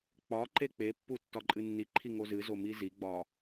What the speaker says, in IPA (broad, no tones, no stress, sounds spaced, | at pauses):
k͡p ɒ ǃ e k͡p e pː u tː ɒ ǃʼ ɨ nː i ǃʰ i ŋ o z ɨ z o m i z i ɡ͡b ɒ